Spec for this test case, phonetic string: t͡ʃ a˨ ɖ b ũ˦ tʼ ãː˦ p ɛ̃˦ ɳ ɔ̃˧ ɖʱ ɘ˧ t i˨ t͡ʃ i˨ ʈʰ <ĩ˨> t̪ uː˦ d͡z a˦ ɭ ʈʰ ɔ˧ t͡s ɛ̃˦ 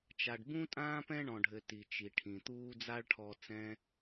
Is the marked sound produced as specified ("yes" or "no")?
yes